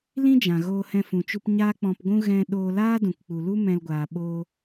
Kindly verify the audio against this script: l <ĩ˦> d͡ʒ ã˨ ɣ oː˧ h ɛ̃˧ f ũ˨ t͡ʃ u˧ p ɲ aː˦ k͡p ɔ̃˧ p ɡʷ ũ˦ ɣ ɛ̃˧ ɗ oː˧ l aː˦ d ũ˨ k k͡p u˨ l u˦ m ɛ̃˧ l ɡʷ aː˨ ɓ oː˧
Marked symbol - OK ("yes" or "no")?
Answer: yes